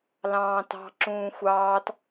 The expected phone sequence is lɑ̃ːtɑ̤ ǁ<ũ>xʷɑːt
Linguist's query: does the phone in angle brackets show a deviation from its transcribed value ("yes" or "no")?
yes